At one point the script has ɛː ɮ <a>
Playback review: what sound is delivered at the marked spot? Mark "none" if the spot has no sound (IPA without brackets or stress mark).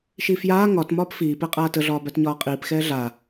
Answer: a